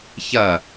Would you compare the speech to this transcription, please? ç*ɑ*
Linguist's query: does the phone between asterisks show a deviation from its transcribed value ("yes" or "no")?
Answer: yes